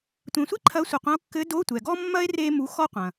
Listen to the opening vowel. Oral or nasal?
nasal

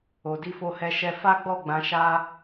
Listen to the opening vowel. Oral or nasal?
oral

